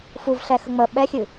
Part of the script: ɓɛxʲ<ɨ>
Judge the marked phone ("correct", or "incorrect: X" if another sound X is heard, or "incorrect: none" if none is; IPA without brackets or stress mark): correct